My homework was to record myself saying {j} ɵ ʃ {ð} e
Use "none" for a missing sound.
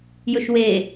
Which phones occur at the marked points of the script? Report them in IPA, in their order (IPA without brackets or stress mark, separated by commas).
j, w